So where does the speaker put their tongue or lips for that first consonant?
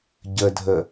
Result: palate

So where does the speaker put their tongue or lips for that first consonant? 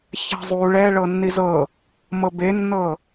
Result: palate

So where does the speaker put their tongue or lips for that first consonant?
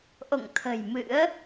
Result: throat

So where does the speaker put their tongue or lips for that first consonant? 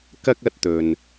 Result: velum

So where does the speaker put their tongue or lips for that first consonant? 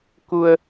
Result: velum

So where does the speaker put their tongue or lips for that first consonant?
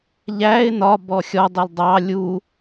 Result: palate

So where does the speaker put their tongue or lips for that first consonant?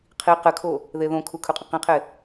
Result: uvula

